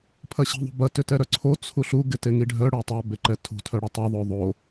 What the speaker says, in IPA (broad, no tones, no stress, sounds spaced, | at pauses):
pʰ ɐ ɕ i̤ ðˤ ṳ b ɐ t ʏ t ɛ ɾ œ ǀʰ o t͡sʰ u ɬ u ɡ ɪ t e ŋ i ɖʱ œ ɽ o tˤ œ b e ǃ ɛ tʰ ṳ tʰ œ ɽ ɐ tˤ ɛ ðˤ o ðˤ o